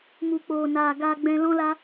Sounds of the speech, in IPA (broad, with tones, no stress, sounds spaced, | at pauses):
m u˨ k͡p oː˨ n aː˨ ɡ aː˧ ɡ͡b ɛ̃˧ l ɔ̃˦ l a˦